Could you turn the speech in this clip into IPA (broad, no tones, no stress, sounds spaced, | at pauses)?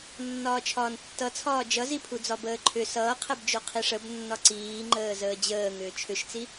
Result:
nː ɒː t͡ʃʰ ɒː n tː ʌ t͡sʰ ɒː d͡ʒ ʌ z i pʰ u d͡z ɒ b əː ǃʰ ʏ s ʌː qʰ ɛ b d͡ʒ o qʰ i ʂ ə b nː ɒ ǀ iː ŋ͡ǃ əː z əː d͡ʑ əː ŋ ʏː t͡ʃʰ ʏ ʃ t͡s i